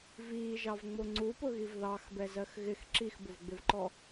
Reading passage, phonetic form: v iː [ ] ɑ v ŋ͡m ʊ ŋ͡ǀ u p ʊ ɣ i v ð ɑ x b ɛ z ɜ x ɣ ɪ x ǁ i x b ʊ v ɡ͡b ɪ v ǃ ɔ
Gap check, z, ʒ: ʒ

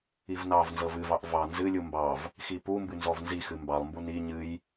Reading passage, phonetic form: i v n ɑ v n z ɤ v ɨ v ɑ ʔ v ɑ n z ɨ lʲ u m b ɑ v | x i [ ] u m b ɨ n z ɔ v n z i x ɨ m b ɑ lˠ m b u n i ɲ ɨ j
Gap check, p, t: p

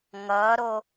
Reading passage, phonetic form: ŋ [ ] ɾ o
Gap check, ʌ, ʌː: ʌː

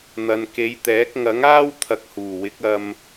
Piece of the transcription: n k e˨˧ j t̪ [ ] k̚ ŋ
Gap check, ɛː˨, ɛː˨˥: ɛː˨˥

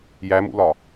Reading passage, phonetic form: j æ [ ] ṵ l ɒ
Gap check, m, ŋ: m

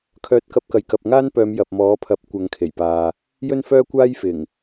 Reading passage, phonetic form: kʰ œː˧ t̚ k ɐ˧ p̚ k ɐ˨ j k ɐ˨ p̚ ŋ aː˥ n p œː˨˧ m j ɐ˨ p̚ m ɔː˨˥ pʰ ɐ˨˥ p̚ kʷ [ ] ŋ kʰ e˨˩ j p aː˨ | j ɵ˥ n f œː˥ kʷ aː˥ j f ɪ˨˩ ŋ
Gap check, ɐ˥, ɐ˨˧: ɐ˨˧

